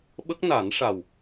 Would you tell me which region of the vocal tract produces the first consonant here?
lips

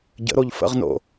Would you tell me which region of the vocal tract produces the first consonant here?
palate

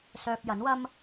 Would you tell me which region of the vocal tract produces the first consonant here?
tongue tip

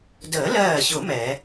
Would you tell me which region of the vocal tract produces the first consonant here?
tongue tip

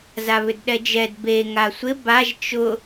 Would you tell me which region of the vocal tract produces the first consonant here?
tongue tip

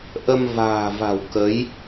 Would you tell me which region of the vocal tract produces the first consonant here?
throat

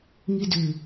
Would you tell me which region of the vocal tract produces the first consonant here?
velum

